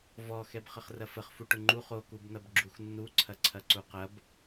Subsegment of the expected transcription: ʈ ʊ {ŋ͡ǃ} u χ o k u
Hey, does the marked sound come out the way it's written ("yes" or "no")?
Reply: yes